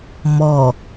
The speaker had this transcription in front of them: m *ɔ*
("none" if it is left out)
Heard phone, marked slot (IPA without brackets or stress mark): ɔ